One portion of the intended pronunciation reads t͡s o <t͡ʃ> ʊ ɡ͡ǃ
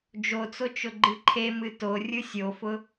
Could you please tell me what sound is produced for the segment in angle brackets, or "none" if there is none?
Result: t͡ʃ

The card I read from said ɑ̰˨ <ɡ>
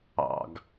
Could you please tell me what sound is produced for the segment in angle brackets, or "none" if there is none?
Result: ɡ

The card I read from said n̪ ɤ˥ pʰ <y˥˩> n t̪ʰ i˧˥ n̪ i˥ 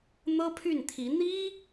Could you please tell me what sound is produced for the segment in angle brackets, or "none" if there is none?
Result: y˥˩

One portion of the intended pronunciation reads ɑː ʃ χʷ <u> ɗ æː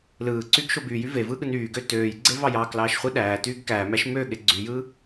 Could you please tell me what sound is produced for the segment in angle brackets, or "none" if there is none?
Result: ɯ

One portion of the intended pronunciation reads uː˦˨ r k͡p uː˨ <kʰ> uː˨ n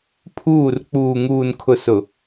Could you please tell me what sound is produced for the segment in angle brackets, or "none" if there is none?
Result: ŋ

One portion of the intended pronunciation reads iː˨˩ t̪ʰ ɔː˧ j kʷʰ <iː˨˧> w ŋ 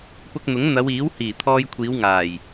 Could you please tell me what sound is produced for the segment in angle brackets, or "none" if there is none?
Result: iː˨˧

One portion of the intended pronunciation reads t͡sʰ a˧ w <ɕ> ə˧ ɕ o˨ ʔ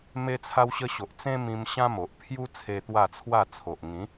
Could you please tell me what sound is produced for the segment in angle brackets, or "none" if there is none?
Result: ɕ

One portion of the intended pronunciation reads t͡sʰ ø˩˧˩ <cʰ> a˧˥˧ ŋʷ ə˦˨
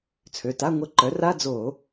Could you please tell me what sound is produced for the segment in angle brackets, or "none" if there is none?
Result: t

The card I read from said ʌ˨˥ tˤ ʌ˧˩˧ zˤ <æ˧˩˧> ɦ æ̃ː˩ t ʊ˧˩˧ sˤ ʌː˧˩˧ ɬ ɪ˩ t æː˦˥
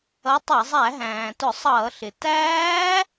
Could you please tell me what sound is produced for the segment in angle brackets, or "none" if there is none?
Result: æ˧˩˧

